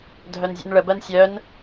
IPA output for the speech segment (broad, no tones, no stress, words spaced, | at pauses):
dʱœnzʲṵnɭəbɜn sʲœn